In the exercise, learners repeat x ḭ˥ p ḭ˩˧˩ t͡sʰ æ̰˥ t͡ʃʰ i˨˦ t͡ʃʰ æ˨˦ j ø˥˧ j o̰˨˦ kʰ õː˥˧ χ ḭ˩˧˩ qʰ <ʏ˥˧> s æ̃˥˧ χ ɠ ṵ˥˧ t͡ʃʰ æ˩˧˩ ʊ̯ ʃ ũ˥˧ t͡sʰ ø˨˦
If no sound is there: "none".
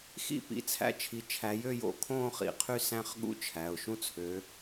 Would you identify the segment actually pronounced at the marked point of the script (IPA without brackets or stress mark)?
y˥˧